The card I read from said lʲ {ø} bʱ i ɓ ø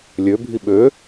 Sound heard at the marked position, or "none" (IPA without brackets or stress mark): ø